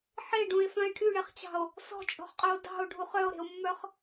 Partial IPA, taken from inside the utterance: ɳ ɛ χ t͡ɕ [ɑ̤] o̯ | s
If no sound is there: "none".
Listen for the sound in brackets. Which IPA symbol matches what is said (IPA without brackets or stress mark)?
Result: ɑ̤